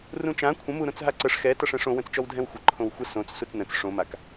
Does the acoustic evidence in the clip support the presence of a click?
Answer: yes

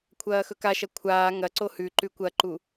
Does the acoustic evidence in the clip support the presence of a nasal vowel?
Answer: no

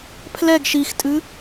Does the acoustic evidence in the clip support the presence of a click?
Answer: no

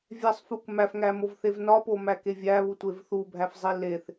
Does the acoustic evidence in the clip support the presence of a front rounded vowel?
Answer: no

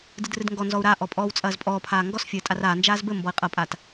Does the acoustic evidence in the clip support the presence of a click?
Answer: no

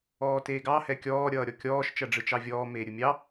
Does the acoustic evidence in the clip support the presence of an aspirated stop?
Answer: no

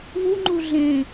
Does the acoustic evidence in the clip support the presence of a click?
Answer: yes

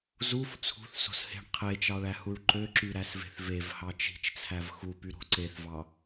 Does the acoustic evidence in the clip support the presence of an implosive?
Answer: no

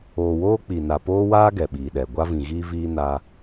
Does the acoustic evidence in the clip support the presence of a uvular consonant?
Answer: no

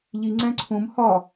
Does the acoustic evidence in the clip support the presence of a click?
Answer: yes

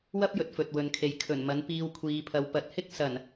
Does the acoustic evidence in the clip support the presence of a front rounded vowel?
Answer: no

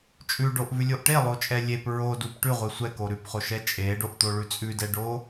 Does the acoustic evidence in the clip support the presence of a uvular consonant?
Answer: yes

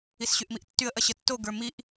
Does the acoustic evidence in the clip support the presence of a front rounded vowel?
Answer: yes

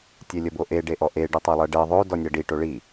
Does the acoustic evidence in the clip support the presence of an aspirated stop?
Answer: no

